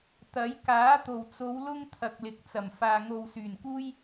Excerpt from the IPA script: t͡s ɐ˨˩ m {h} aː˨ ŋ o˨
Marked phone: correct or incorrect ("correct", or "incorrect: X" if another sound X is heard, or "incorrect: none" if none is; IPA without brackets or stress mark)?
incorrect: f